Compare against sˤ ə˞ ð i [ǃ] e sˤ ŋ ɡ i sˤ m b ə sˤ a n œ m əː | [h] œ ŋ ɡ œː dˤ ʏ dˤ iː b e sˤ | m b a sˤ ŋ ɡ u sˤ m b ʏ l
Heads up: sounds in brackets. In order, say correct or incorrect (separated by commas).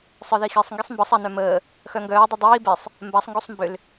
incorrect, incorrect